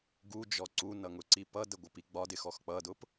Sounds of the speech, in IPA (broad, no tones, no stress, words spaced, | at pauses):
ɡud͡ʒɔ ǀunʌ ŋʊǀipʌdə ɡʷəpiɡ͡bɒdɪ xɔxk͡pʌdʊp